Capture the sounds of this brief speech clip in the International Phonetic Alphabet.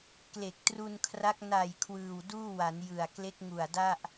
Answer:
k l e˨˩ k̚ t r u˧ n kʰ r a˦˥ k̚ n a˨˩ j kʰ w ɯː˨˩ w d uː˥˩ w a˩˦ n j ɯ˨˩ a̯ k l e˦˥ k̚ ŋ u˨˩ a̯ d a˥˩ ʔ

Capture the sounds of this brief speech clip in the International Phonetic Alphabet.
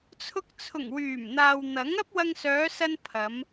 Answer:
t͡sʰ ʊ˧ k̚ t͡sʰ ʊ˨˩ ŋ w yː˨˩ m n̪ aː˨ w n̪ ɐ˨˥ ŋ ɐ˥ p̚ w ɐ˧ ŋ s œː˨˧ s ɐ˧ n pʰ ɐ˨˧ m

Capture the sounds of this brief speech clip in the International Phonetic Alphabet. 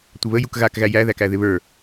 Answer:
tʷ ɪ β ə j u k ɣ a k ɣ æ j æ ð æ k æ ð ɪ β ə˞

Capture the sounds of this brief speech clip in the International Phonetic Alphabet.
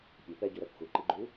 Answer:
pʲ ø p ɛ ɟ ɵ ɾ ɛ p xʷ œ ǃ i ɡ͡ǃ u

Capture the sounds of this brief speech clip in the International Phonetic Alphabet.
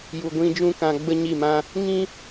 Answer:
j u˨ ɡʷ ĩ˧ d͡ʒ ũ˦ k ã˧ ɡ͡b ə˦ ɲ i˦˨ m ã˦ | ŋ ĩ˦

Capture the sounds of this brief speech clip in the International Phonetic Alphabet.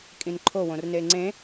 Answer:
kʼ ĩ n ǃʰ o w õ r n e ŋ͡ǀ ẽ

